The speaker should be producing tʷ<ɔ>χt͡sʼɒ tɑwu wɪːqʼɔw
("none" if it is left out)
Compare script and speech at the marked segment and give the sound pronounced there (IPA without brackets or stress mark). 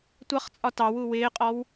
ʌ